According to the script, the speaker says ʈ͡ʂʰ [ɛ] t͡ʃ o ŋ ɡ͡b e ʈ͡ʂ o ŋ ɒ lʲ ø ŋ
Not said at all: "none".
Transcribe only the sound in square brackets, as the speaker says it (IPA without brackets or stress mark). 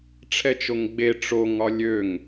ɛ